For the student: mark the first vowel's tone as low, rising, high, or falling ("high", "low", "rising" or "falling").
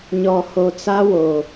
low